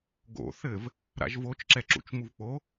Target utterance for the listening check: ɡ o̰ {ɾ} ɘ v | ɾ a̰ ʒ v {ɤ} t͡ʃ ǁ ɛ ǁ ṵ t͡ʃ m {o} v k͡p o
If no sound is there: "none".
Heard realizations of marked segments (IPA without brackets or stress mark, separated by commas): θ, o, u